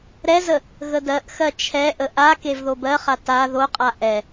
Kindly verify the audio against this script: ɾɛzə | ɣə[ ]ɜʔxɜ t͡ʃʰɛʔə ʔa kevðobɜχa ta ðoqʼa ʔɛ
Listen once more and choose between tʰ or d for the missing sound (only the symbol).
d